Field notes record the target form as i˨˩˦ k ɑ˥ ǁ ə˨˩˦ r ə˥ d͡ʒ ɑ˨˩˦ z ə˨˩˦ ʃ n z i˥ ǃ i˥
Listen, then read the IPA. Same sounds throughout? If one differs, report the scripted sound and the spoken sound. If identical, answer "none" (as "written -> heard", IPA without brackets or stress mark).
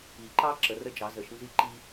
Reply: k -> ǃ